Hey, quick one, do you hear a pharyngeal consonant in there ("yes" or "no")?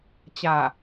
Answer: no